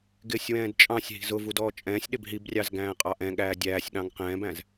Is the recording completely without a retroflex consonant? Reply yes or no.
yes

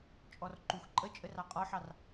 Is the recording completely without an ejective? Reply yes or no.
no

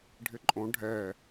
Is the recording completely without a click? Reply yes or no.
no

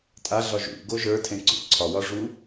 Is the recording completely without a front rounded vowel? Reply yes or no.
yes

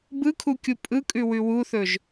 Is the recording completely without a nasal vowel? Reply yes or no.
yes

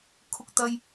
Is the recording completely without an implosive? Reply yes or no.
yes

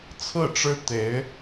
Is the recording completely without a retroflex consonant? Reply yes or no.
no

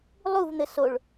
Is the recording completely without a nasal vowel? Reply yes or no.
yes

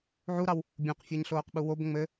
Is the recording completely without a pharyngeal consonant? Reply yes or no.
no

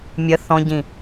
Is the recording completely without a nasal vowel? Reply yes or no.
no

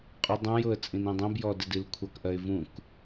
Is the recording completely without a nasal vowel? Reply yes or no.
no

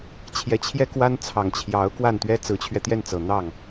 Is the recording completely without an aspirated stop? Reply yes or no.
no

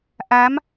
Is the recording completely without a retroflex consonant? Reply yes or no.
yes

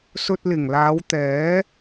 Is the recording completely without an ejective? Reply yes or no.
yes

